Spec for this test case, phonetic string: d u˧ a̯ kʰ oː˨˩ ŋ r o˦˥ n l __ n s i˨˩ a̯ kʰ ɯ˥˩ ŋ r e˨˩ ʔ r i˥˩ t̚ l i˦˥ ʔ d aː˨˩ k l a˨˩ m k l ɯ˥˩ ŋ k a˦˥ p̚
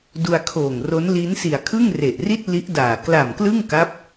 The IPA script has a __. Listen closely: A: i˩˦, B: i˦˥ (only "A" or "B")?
B